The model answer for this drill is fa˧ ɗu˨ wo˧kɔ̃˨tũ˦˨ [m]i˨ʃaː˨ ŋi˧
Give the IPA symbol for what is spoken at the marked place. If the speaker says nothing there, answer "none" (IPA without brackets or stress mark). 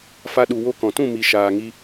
m